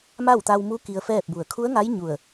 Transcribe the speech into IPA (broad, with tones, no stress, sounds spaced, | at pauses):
m a˥˨ w t̪ a˧ w m u˧˥ k i˧ ə̯ f ɛː˥˨ p̚ b u˧˩ ə̯ kʰ u˧˥ ə̯ ŋ a˧˥ j ɲ u˧˩ ə̯